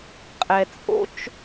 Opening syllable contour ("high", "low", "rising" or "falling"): low